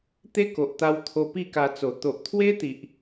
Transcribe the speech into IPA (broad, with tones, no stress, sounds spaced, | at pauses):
t̪ e˦ k o˨ ʔ t̪ a˧ w t̪ʰ o˧ p i˥˧ k a˧ t͡s o˨˩ t̪ o˨ ʔ t̪ʰ w e˦ t̪ i˨ ʔ